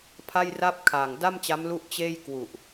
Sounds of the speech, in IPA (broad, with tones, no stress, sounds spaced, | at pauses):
pʰ a˥˩ j r a˥˩ p̚ kʰ a˨˩ ŋ d a˥˩ m t͡ɕ a˦˥ m l u˥˩ ʔ t͡ɕ eː˥˩ j k w u˨˩ ʔ